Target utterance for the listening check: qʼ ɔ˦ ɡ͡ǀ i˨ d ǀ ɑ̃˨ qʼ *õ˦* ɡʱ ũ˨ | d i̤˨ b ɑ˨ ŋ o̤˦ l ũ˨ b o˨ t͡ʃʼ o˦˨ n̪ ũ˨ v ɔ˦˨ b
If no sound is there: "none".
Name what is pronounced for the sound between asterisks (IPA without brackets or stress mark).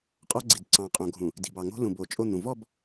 õ˨